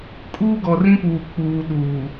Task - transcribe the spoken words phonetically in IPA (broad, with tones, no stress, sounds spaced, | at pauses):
kʼ uː˦ ɡ ɔ˨ r ĩ˦ p uː˨ k͡p uː˨ ɗ uː˨